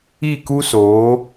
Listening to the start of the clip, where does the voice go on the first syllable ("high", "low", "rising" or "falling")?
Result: falling